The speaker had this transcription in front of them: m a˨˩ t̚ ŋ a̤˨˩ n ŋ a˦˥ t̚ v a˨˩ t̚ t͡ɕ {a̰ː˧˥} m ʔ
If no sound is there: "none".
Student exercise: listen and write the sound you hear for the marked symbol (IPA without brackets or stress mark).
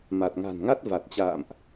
a̰ː˧˨